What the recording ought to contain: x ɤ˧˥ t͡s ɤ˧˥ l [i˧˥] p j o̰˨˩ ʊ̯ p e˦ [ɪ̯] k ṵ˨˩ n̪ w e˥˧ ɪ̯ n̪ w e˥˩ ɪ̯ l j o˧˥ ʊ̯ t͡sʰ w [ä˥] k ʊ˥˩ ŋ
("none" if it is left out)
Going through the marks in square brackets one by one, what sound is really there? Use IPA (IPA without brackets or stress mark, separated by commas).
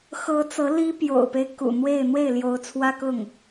i˥, ɪ̯, ä˥